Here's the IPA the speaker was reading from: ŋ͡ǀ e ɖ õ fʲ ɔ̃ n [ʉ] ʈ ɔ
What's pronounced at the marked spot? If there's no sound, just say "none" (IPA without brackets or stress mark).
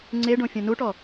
u